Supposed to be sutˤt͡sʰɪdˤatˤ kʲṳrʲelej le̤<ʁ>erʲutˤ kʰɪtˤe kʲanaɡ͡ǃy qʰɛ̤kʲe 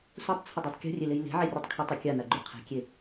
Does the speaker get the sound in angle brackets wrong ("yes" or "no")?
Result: yes